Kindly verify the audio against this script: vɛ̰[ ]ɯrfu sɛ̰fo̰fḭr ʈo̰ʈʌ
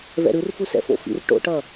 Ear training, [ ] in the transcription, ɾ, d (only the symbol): ɾ